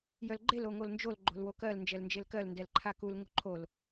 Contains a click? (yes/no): yes